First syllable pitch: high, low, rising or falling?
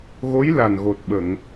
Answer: rising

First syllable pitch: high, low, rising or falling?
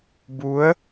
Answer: rising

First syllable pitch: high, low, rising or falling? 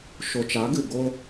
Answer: low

